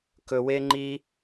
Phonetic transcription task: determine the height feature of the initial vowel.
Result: mid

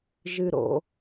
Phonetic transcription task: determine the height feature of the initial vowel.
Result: high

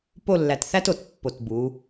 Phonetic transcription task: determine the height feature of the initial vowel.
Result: mid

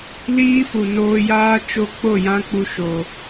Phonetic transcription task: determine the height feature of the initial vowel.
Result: high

